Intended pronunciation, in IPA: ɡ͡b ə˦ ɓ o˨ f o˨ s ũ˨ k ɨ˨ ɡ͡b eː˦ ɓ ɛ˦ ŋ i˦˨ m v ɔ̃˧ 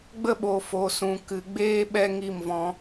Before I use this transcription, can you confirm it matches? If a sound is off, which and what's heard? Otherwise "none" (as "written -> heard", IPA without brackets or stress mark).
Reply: none